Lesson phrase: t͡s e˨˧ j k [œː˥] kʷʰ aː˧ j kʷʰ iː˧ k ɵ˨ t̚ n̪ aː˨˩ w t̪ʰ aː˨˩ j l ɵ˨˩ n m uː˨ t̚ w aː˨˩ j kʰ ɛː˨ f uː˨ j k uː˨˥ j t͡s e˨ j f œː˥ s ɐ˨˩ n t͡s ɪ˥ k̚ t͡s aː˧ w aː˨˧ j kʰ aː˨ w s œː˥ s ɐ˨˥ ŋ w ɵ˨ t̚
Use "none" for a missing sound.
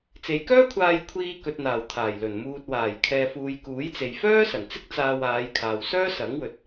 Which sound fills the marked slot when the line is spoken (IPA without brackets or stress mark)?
œː˥